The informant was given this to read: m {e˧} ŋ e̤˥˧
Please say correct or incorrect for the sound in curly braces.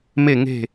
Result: incorrect